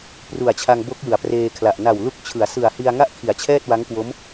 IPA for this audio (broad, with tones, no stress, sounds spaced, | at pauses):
p r u˨˩ a̯ t͡ɕʰ a˧ ŋ b o˦˥ k̚ j ɯ˩˦ a̯ p r eː˧ kʰ l a˨˩ ʔ n a˨˩ w l u˦˥ k̚ t͡ɕʰ ɯ˩˦ a̯ s ɯ˨˩ a̯ h i˧ a̯ ŋ a˥˩ ʔ kʰ i˩˦ a̯ t͡ɕʰ ɛː˥˩ t̚ w a˦˥ ŋ k w o˦˥ m